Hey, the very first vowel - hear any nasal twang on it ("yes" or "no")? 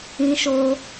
yes